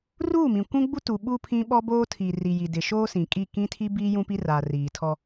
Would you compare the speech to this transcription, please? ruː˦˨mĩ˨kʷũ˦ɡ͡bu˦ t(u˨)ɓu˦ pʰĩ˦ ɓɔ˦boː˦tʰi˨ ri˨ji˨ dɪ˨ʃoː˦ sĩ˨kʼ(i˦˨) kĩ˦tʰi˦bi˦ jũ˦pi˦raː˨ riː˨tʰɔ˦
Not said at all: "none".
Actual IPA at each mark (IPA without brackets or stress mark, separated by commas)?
u˨, i˦˨